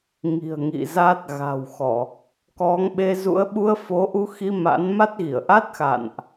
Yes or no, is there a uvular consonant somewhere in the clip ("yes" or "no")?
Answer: no